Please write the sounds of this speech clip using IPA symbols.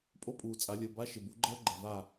pʼ o˦˥ pʼ uː˨ t͡sʼ a˨˩˦ lʲ əː˨ b a˧˥˧ ʃ ɪ˨ b u˩˥ ɡ͡ǃ əː˦˥ ɡ͡ǃ ɛ˨ v a˥˨

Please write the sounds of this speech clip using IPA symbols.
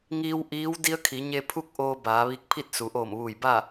ŋ iː˧ w ʔ iː˧˥ w d i˧˥ ə̯ kʰ i˩˧ ɲ e˧ pʰ u˥˨ k̚ ʔ oː˧ b aː˩˧ ʋ i˧ k̚ pʰ i˥˨ t̚ s u˩˧ ʔ oː˧˩ m ʋ uː˧˩ j b a˥˨

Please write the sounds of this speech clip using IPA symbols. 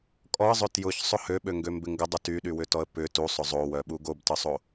kʼ ɔ ə̯ zˤ ʏ t j ʊ ç sˤ ʊ h ø ɓ ø ŋ ɡ ø m b ɪ ŋ ɡ ə dˤ u t y ɗ y w ʏ t ɔ ə̯ p ʏ t u sˤ ʊ zˤ o w œ ɓ u ɡ o b t ə sˤ o

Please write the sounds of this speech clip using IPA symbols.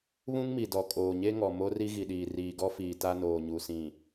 β ũ˦ ŋ m i˨ d ɔ˨ kʼ oː˨ ɲ e˦ ŋ ɔ˨ m o˦ r i˦ ɣ i˨ ɗ iː˨ r iː˨ ɡ ɔ˦ f iː˨ t a˦ n oː˨ ɲ u˨ s ĩ˨

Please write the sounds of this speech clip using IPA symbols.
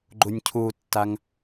ɡ͡ǃ u nʲ cʰ u tː a ŋ

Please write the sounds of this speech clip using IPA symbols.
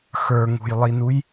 x ə˞ ŋ ṳ j lˠ i n u j

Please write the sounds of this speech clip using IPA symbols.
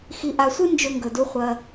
x i˨ ʔ a˨ sʷ ɨ˦ n d͡ʒ ɵ˦ ŋ ɡ ɵ˨ d u˦ χʷ ɐ˧

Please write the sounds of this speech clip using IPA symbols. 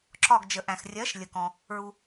ǁ ɒ˧˩ ɡ d͡ʒ ə˩ ʔ æ̃˩ x rʲ ɜ˩˥ ʃ lʲ ə˩ k ɔ̃˩ | ɹ u˩

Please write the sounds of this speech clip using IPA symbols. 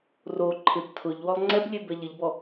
r o ǃʰ ɪ b tʰ ʊ ʎ w ɔ lˠ ŋ͡ǀ ɛ b lʲ e b ɛ ʎ ɪ ʎ b ɔ

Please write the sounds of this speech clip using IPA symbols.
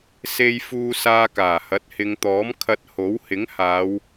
s e˧ j f uː˧ s aː˧ k aː˨˩ h ɐ˨˥ t̚ h ɪ˨˧ ŋ t̪ ɔː˨˥ m kʰ ɐ˧ t̚ h o˨˥ w h ɪ˨˥ ŋ h aː˨˧ w

